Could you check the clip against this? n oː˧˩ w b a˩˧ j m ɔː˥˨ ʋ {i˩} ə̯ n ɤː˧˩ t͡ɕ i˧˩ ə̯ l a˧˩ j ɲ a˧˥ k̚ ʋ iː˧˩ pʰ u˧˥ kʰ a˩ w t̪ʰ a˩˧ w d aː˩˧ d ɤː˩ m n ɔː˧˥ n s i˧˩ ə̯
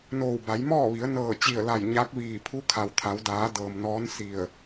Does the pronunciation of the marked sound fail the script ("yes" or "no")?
yes